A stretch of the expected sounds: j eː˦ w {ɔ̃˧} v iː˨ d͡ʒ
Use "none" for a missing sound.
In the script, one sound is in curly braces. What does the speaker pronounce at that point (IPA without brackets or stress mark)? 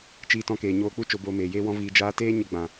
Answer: ɔ̃˦